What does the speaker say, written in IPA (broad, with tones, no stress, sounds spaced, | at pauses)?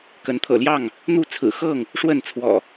k ə˨˦ n t̪ʰ ɤ̰˨˩ l j ɑ˥˨ ŋ | n̪ u˦ t͡sʰ ɹ̩˨˩ x ɤ˥˨ ŋ | ʂ w ə˥˨ n t͡sʰ w ɔ̰˨˩